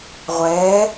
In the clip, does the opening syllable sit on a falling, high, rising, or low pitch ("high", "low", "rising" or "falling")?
rising